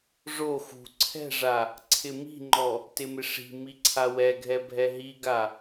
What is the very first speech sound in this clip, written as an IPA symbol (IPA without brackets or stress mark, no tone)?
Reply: ʐ